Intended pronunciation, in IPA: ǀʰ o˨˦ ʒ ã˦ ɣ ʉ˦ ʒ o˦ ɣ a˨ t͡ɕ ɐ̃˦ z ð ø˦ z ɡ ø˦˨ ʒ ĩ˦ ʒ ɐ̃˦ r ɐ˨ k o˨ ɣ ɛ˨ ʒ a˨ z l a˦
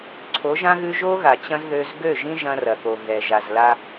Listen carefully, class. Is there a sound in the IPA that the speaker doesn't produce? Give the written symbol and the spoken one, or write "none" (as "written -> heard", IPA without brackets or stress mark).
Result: none